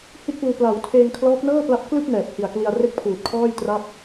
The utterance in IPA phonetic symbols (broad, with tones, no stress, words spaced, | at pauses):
hi˥˩t̚puː˧ pla˩˦w tʰeː˧ŋkʰlɔː˦˥k̚nɤː˥˩pla˦˥p̚ klɯ˥˩k̚ nɛː˨˩p̚hi˨˩a̯kli˧a̯ re˥˩k̚pʰuː˨˩t̚kʰɔː˥˩j tra˥˩p̚